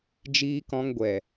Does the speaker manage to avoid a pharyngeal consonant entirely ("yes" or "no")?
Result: yes